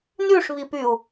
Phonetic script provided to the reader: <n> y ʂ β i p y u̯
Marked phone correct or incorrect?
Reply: correct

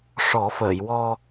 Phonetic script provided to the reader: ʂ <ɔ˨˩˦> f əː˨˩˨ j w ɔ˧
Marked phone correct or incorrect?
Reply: correct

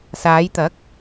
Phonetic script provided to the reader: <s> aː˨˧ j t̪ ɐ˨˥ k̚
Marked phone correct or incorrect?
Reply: correct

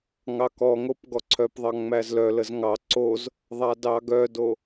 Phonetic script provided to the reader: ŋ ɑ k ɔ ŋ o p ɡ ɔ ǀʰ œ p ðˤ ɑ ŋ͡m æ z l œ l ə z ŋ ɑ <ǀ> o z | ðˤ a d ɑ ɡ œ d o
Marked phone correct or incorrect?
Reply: correct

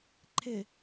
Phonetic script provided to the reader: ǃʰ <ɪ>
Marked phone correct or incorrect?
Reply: correct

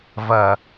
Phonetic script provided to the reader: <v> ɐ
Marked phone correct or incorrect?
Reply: correct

